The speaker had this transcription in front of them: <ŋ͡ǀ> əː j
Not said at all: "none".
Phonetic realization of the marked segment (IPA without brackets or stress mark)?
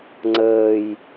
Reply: ŋ͡ǀ